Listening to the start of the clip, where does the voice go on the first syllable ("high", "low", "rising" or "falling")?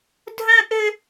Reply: high